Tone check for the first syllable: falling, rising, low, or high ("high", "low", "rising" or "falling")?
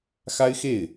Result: high